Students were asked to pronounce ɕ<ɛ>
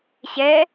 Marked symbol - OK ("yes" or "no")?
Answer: yes